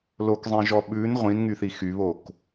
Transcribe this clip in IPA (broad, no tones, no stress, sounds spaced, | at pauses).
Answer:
l o k zˤ ẽ ʒ ɔ ɓ ʉ n ʁʷ ĩ n ŋ y θ i x y β o k